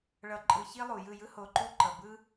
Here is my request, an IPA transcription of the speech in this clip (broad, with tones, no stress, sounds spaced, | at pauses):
ɭ ʌ˧ ǃʼ ɯ˧ ç i˦ lˠ u˨ j ɯ˦˨ j ɯ˦ h o˧ ǃ u˦ ǃ ʌ˨ b ɯ˦